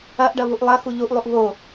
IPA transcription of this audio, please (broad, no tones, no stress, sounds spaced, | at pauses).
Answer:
ɐ ʔ ɖ ɐ β u ʔ lˠ ɐ x u ʎ u ʔ lˠ u ʔ β o